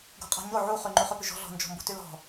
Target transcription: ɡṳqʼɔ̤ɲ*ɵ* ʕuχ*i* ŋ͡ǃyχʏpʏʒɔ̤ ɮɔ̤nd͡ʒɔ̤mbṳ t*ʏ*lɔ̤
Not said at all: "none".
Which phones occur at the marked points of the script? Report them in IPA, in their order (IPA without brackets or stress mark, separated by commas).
o, y, y